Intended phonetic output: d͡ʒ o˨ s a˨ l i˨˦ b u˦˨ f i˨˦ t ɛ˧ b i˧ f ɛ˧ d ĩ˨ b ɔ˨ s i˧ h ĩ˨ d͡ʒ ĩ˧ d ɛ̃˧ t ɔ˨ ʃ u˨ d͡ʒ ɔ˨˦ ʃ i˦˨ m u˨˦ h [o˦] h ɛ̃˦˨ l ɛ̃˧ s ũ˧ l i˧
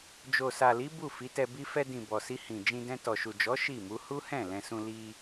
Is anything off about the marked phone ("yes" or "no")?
yes